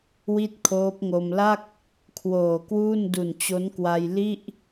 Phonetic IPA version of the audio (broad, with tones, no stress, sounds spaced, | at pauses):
w i˥˩ t̚ kʰ oː˦˥ p̚ ŋ o˧ m l a˥˩ k̚ | kʰ w oː˨˩ k w uː˥˩ n d u˨˩ n t͡ɕ o˦˥ n k w a˧ j l i˥˩ ʔ